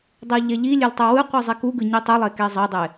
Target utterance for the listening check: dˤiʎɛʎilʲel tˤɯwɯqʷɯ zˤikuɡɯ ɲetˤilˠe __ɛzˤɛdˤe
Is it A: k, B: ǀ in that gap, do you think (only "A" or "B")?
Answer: A